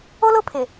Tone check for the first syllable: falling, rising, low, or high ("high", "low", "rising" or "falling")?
high